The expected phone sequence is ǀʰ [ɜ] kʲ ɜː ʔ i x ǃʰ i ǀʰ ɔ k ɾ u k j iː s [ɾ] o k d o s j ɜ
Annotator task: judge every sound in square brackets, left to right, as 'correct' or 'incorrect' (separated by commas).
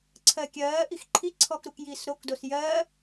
correct, correct